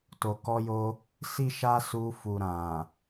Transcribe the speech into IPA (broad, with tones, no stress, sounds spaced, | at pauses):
t o˨ k ɔ˧ j o˧ | s i˦ ʃ a˦ s u˧ f u˨ ɾ ã˨